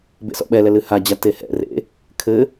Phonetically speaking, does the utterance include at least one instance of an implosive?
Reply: yes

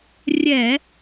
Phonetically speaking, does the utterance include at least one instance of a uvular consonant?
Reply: no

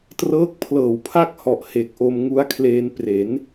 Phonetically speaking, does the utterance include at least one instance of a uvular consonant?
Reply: no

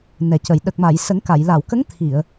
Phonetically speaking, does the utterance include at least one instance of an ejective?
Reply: no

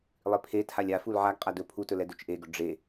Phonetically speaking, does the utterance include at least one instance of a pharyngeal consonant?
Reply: yes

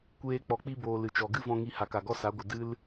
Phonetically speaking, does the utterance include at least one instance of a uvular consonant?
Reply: no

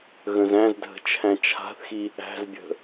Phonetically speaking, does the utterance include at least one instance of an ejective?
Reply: no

